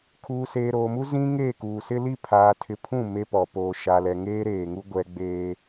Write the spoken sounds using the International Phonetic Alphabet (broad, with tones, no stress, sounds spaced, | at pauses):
kʰ uː˨ s eː˨ ɾ oː˨ m u˦ z ĩ˦ ŋ e˦˨ k uː˨ s ɪ˦ l i˦˨ pʰ aː˨ tʰ ɪ˨ pʰ ũ˦˨ m e˦ p ɔ˨ p oː˨ ʃ a˨ l ɛ˨ ŋ eː˦ ɾ eː˨ ŋ u˦ ɡʷ ɛ˦ ɡ͡b eː˦